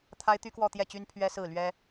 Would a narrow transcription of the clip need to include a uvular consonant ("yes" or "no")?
no